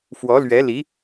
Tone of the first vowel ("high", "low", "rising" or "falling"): rising